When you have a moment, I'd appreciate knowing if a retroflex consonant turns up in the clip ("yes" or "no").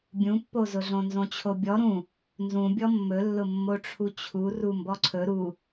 yes